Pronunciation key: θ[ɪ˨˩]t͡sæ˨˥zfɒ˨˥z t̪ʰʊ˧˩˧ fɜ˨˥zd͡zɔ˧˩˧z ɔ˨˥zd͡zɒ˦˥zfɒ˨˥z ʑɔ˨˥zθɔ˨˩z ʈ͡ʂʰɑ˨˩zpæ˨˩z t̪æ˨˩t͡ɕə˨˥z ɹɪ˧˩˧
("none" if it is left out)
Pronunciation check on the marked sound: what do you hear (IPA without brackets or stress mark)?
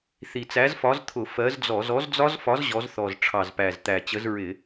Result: i˨˩